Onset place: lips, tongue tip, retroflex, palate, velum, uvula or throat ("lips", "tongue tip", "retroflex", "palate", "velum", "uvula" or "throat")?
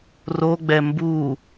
tongue tip